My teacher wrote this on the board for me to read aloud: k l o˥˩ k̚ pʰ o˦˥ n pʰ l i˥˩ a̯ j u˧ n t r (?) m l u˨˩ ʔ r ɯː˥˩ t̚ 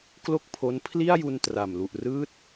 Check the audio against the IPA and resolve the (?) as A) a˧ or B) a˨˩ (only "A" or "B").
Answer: B